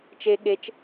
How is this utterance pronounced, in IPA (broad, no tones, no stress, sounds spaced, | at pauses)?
t͡ʃ e ɠ e t͡ʃ